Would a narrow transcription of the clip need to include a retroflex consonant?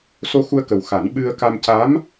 no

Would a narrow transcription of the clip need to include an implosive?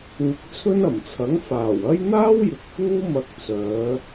no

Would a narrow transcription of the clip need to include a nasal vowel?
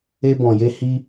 yes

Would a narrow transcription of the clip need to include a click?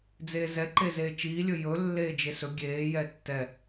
yes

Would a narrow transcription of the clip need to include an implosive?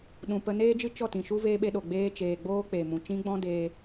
yes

